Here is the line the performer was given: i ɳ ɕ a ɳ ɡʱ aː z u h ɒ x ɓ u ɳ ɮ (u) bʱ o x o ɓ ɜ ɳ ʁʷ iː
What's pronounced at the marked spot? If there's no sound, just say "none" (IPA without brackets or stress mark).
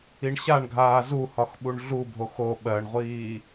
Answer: u